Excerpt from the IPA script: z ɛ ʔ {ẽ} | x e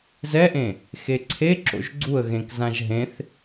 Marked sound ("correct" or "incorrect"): correct